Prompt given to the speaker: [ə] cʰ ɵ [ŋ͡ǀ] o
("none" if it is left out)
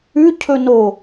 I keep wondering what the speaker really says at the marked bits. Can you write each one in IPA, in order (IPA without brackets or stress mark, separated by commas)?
ʉ, n